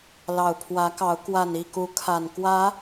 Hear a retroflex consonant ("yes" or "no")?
no